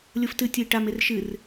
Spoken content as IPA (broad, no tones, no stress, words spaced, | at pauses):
lʲoftɨ tʲɘi̯ʈam erʃɨr